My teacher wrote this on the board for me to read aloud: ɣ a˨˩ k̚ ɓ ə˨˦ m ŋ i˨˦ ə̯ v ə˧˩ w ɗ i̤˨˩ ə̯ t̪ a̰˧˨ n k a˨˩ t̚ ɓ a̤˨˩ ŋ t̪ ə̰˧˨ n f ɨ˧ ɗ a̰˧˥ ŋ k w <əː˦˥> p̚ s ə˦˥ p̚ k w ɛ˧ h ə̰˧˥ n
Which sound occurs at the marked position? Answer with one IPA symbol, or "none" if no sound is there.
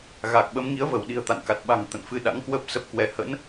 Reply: əː˦˥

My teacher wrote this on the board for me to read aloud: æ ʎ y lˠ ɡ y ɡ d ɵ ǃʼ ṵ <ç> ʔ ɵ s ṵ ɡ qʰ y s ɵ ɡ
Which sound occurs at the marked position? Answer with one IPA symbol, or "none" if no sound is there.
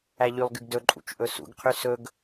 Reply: t͡ʃ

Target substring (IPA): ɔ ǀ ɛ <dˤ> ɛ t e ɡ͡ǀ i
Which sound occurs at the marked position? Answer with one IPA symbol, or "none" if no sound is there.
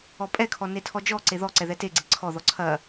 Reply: ð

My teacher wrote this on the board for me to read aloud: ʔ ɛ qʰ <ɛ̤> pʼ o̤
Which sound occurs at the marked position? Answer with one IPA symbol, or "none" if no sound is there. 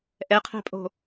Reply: ɛ̤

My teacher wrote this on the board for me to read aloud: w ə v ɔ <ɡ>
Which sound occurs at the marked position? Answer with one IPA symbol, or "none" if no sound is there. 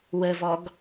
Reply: ɡ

